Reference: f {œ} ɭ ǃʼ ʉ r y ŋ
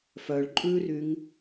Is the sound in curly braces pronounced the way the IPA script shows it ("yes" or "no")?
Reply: yes